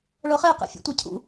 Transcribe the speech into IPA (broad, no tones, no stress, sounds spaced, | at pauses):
ɭ ɤ χ e q ɛ̰ fʲ ɛ̰ tʷ ɛ cʰ ṵ